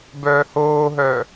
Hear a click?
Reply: no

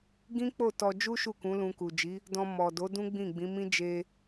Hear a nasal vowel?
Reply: yes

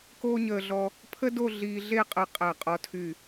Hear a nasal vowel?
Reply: no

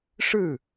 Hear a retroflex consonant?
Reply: yes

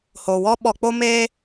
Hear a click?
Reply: no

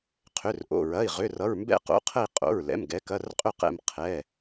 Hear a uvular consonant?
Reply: yes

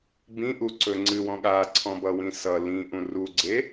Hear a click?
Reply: yes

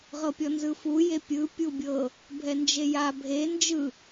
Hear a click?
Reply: no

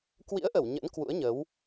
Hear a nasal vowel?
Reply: no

